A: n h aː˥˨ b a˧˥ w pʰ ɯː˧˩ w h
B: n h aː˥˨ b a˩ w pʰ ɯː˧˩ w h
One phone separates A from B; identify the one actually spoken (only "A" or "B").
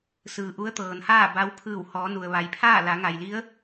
A